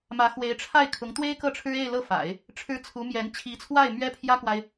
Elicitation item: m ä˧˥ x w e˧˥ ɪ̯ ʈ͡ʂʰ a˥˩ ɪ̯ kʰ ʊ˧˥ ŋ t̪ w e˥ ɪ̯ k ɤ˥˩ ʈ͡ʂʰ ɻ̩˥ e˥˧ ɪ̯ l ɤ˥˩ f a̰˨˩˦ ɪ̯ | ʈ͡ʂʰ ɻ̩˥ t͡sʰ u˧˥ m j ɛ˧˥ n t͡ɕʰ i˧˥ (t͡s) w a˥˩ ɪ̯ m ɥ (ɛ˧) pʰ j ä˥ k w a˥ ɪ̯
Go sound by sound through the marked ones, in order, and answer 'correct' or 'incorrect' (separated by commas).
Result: incorrect, incorrect